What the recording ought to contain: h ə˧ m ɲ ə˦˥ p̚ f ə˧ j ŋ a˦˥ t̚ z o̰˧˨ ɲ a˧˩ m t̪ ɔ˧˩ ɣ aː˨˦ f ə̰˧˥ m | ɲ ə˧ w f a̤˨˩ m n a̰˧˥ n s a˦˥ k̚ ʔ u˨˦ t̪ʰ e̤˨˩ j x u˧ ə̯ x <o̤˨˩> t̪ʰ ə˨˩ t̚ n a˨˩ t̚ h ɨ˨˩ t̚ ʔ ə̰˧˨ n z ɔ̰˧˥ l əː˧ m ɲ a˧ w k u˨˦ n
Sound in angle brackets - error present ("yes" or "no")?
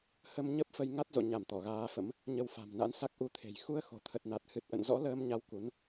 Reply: no